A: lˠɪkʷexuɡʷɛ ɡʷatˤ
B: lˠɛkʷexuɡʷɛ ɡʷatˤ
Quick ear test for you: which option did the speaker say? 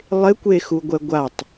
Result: A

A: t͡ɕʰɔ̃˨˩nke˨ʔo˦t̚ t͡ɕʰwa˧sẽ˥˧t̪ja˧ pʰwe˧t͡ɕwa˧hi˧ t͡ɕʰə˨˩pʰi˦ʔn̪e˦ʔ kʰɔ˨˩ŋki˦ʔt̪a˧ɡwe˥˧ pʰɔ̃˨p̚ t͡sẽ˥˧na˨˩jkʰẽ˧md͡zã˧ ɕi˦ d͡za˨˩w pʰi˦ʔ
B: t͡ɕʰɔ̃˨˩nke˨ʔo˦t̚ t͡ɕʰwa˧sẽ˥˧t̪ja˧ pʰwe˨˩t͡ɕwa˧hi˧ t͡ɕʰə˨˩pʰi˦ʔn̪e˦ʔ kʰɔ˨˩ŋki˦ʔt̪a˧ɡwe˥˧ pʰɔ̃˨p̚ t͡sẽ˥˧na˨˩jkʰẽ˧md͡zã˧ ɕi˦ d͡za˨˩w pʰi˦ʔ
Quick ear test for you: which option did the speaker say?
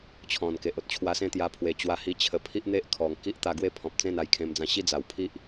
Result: B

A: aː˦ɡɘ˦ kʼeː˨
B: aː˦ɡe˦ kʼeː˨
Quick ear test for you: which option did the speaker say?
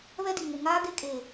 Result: B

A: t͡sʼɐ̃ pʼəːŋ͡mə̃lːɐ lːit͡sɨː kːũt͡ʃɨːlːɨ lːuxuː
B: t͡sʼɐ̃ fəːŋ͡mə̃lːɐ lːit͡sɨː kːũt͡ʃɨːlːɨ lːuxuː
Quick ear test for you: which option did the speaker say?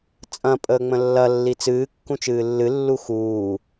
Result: A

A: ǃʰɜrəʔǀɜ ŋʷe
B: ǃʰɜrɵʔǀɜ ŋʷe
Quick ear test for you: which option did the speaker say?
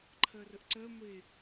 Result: A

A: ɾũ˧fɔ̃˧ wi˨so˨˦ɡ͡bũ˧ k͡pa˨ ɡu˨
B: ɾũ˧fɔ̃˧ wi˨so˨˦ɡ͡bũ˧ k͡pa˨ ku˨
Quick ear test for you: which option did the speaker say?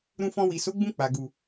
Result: A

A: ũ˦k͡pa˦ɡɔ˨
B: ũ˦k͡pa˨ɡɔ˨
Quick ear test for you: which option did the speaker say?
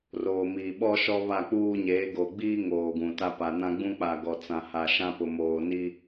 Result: B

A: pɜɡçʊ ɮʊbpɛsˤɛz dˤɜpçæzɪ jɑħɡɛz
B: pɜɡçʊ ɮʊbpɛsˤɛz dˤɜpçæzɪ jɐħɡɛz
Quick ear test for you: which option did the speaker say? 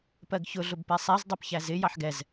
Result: A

